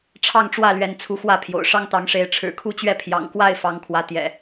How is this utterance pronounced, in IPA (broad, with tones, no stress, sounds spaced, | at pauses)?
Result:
ʈ͡ʂʰ ɑ˥˨ ŋ ʈ͡ʂ w ä˥˨ l ɥ ɛ˨˦ n t͡sʰ u˨˦ x w ä˥˨ pʰ j o̰˨˩ ʊ̯ ʂ ɑ˦ ŋ t̪ ɑ˨˦ ŋ ʂ e˨˦ ɪ̯ ʈ͡ʂʰ ɻ̩˨˩ kʰ u˦ t͡ɕ ɥ ɛ˥˨ pʰ j ɑ̰˨˩ ŋ k w a˥˨ ɪ̯ f ɑ˨˦ ŋ kʰ w ä˨˦ t̪ j ɛ̰˨˩